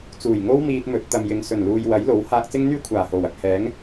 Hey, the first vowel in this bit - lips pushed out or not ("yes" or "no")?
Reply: yes